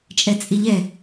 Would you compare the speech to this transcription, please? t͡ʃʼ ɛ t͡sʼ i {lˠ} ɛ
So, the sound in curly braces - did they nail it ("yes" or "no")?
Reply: no